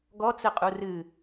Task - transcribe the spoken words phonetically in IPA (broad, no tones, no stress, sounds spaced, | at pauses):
ɡ ɔ t͡s ɘ qʼ u r ɨ